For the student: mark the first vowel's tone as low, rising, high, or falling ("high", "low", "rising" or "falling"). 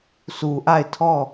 low